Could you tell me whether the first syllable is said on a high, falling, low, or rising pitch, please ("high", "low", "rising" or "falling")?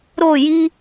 falling